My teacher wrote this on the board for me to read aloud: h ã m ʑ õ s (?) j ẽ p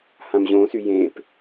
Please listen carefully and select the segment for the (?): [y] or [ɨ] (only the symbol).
y